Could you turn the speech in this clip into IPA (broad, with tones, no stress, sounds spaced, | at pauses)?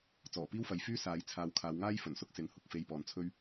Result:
t͡s ɔː˨˩ p iː˥ w f ɐ˨ j f yː˥ s aː˨˧ j t͡sʰ aː˨˧ w kʰ aː˨˧ w ŋ aː˥ j f ɵ˨˩ n s ʊ˥ k̚ s ɪ˨˥ ŋ h ʊ˨ k̚ f e˧ j p ɔː˨ n t͡sʰ ɵ˥ ɥ